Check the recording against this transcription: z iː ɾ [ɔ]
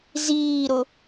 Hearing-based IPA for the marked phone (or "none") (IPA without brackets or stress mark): ʊ